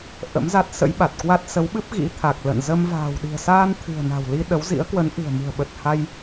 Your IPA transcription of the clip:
ʔ ə̰˧˥ m z a˦˥ t̚ s ə̰˧˥ j ɓ a˨˩ t̚ k w a˦˥ t̚ s ə˨˦ w ɓ ɨ˦˥ p̚ ɣ ḭ˧˥ t̪ʰ a˨˩ k̚ l ə̰˧˨ n z ə˧ m v a̤ː˨˩ w ɗ i̤˨˩ ə̯ s aː˧ n t̪ʰ ɨ̤˨˩ ə̯ n a̤˨˩ w l i˧ ɗ ə˨˦ w z ḭ˧˥ ə̯ k w ə˨˦ n ʔ ɨ̤˨˩ ə̯ m ɨ̤˨˩ ə̯ ɓ ə˨˩ t̚ h a˧ j

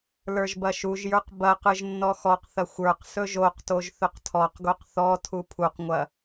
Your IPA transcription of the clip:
l ə˞ ʒ b ɐ ʃ u ʒ j ə˞ q b ɐ q ɯ ʒ nː ɔ x ɔ q θ ɐ xʷ ə˞ q s ɵ ʒ o q t o ʒ θ ɵ q tʰ ɔ q ɡ o q θ ɔ tʰ u pʰ u q ŋʷ ɐ

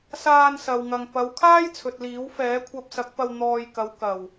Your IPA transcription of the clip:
s aː˧ n s ɐ˨ w ŋ ɐ˨ ŋ p ɐ˨˧ w kʰ aː˥ j t͡sʰ ɵ˨ t̚ l iː˨˥ w f ɛː˨˥ kʷʰ ɐ˧ p̚ s ɐ˨˥ k̚ p ɐ˧ w n̪ ɔː˧ j k ɐ˨˧ w k ɐ˨˩ w

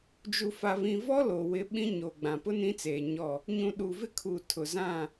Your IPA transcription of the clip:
d͡ʒ u˨ f a˨ β ĩ˨ v ɔ˦ l o˨ w ɪ˦ ɓ ĩ˦ ɲ o˨ ɡ͡b ã˨ p ʊ˦ n ĩ˦ t͡s eː˨ ɲ ɔ˦˨ | ɲ ũ˨ ɗ uː˨ v ɪ˦ kʰ uː˨ tʰ ʊ˨ z ã˦˨

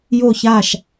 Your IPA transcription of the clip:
j o˥˨ ç aː˥˨ ʃ

